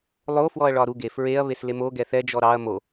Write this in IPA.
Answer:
lˠ o f w ɔ ɐ̯ ɭ ɒ ɾ u ɡ e f ɹ e ɐ̯ β e s l e m o ɡ ɛ θ ɛ d͡ʒ ɔ ɾ ɑ ɐ̯ m o

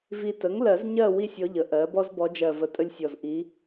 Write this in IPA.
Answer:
v i˨ t ə˩˥ ŋ l ɜ˨˩˦ z ɲ ɜ˦˨ w i˥ sʲ ɔ˧˥ ʎ ə˩˥ ʔ ɜ˩˥ b ɔ˥ z b ɔ˧˥ d͡ʒ ɜ˦˨ v ə˧˥ tʼ ə˥ lʲ sʲ ɔ˦˨ z ʔ i˧˥

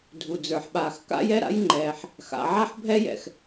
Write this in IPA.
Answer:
dʱ u˩ d͡z ə˞˩ ħ ɓ aː˩ x k a̰˥ j ɛ˥ ɾ a̰˥ j ŋ͡ǃ ɛː˩ ħ | x a̰˩ ʕ a˥ ħ bʱ ɛ˥ j ɛ̰˩ x

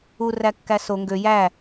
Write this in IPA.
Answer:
u r æ kː æ s o ŋ ɡ ø j æ

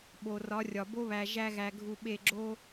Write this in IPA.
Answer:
ɓ o˨ r ɒ˨˦ rʲ ɒ˨ b o˦ β æ˨ ʒ æ˧ ɣ æ˨ ɡʱ u˨ ɓ e˦˨ ɡ͡ǁ o˦

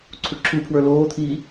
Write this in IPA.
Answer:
ǀʰ u ǁʰ u pʰ w ə˞ l oː t̪ʰ iː

